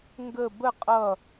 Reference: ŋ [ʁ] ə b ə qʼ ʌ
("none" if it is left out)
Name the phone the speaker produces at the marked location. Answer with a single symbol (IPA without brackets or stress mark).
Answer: ɡ